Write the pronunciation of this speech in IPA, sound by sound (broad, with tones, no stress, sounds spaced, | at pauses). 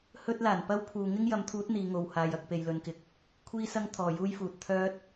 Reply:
h ɵ˥ t̚ l aː˨˩ n p ɐ˥ w pʰ uː˨ ŋ ɪ˥ ŋ j ɐ˨˥ m t̪ʰ uː˨˥ t̚ n̪ iː˨˧ ŋ o˨ w h aː˨ j ɐ˧ k̚ p e˨ j l ɵ˨˧ n k ɪ˨ k̚ | kʷʰ iː˥ s ɐ˥ ŋ t̪ʰ ɔː˨ j uː˥ j f uː˨ t̚ t̪ʰ œː˥ t̚